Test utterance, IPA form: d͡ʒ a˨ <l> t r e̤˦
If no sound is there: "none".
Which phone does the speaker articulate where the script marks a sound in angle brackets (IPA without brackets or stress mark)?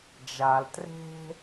l